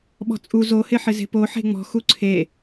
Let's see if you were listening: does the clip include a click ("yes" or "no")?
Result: yes